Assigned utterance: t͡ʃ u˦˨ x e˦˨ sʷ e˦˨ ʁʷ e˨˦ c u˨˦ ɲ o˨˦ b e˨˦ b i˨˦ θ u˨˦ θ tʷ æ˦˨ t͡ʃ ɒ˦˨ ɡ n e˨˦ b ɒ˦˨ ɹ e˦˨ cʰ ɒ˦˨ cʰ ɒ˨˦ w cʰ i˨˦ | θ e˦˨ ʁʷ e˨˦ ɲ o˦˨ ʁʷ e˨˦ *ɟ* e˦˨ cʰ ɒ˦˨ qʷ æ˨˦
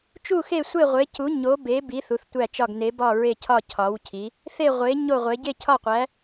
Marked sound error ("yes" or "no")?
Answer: no